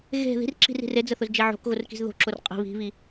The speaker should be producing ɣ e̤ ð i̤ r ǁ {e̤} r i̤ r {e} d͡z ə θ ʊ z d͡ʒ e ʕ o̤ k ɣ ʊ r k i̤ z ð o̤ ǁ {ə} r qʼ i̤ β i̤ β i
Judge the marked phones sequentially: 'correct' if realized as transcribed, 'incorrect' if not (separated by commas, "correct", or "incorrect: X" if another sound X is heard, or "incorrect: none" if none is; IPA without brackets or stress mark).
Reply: incorrect: i̤, correct, incorrect: ʊ